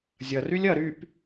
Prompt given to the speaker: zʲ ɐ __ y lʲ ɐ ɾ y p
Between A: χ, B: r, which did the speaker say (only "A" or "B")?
B